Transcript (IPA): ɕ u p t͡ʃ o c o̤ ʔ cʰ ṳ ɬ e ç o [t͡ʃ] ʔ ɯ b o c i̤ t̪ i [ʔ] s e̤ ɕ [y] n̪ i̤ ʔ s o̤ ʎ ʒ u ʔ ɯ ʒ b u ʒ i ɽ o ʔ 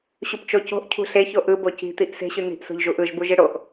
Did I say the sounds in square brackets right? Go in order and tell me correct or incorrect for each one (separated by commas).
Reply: incorrect, correct, correct